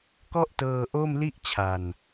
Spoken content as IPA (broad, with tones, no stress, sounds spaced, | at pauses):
k ɔ˥˩ ʔ t ɤː˧ ʔ o˥˩ m l i˥˩ ʔ t͡ɕʰ a˧ n